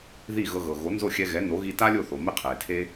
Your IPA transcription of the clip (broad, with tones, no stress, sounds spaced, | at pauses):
ð i˥˩ ɣ ɤ˧ ɣ ɤ˩ ɣ o˩˥ n z o˥˩ xʲ ɛ˧ ɣ ɛ˩˥ n o˩˥ ɣ i˧ t a˥ lʲ o˥˩ θ o˩ m e˥ qʰ eː˩ tʰ e˥